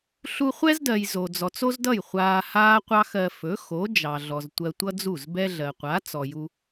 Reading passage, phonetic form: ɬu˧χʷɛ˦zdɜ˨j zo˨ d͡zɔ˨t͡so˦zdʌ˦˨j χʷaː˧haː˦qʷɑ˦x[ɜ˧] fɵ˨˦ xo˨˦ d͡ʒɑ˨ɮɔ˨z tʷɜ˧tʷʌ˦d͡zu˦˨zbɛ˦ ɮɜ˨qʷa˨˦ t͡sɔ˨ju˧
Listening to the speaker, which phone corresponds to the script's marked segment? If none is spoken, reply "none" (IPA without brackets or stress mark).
ɜ˧